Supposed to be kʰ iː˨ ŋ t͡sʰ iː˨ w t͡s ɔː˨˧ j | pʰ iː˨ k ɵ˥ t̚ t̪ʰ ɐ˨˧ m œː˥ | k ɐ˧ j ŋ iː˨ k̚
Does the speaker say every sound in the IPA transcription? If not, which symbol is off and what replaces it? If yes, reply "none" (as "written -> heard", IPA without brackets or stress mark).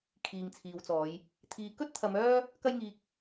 pʰ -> t̪ʰ